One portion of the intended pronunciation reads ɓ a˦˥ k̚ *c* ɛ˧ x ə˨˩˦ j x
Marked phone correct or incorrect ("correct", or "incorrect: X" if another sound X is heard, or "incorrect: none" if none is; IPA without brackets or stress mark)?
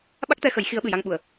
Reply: incorrect: t̪